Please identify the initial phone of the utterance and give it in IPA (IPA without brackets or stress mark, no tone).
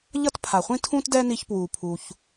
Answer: ʎ